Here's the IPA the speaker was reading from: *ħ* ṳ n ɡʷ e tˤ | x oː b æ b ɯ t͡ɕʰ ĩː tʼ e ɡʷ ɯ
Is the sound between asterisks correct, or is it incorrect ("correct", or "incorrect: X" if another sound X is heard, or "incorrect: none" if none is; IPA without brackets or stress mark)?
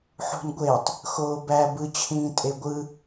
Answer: correct